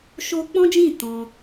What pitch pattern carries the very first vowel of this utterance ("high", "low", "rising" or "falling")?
high